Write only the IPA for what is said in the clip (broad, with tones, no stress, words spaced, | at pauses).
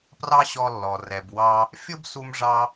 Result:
prɑ˥ɕɔ˧lːɔ˩ rɛ˩bwɑ˧ | fʲʊ˥bsu˧mʐɑ˧